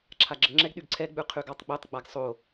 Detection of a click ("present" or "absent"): present